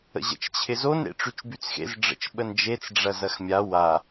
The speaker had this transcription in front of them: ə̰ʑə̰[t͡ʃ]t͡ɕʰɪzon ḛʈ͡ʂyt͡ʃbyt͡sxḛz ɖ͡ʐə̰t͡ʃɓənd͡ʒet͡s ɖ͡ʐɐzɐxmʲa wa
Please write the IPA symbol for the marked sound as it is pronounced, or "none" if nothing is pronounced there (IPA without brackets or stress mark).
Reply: t͡ʃ